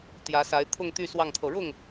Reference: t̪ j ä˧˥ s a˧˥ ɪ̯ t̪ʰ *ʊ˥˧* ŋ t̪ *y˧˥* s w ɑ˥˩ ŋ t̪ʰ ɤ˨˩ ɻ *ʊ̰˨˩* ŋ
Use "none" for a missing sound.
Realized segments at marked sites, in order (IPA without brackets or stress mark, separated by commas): ʊ˥˧, y˥˧, ʊ˥˩